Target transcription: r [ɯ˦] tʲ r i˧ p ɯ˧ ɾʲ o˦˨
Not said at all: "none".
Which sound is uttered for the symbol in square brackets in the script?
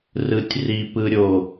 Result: ɯ˨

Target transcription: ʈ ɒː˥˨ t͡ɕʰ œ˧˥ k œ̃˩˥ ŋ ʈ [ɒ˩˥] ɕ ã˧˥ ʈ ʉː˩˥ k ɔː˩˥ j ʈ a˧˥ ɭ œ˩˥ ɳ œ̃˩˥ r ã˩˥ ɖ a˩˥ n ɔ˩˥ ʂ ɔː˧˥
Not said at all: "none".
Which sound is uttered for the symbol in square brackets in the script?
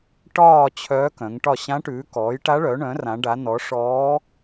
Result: ɒ˥˨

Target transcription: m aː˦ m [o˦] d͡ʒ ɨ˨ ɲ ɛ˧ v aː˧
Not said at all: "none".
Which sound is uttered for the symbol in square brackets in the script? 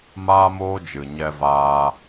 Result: oː˦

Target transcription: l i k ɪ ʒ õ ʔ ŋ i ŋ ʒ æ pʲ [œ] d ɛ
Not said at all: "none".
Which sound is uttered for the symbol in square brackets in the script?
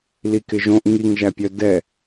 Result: œ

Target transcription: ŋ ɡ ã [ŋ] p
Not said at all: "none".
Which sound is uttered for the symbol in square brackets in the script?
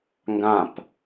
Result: none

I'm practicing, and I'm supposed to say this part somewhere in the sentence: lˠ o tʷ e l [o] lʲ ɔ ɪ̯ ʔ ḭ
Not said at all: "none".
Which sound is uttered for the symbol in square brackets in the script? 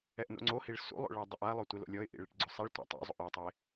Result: o̰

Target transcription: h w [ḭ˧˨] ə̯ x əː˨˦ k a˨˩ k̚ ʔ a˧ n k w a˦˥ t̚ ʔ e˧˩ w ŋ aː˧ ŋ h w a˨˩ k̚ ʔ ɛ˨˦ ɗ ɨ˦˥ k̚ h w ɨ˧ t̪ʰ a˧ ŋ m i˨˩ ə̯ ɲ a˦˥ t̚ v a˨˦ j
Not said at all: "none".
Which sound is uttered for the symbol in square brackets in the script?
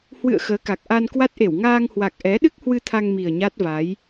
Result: ɨ̰˧˨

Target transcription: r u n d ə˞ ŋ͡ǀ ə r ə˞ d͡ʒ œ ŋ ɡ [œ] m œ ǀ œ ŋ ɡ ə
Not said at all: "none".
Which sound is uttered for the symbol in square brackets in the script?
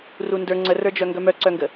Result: œ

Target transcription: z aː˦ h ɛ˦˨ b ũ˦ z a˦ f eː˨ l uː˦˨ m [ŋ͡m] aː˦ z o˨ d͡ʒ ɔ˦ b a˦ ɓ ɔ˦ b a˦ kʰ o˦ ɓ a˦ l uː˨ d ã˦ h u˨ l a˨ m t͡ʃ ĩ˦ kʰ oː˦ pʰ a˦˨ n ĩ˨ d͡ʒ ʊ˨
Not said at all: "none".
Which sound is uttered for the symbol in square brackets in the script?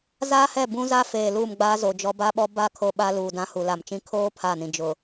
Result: ɡ͡b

